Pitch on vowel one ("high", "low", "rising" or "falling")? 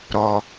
low